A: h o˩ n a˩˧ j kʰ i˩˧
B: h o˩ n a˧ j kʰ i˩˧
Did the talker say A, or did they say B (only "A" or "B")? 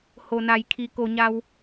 A